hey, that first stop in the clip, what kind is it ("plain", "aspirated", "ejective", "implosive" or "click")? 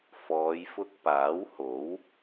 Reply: plain